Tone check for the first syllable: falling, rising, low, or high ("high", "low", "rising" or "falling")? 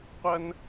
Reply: high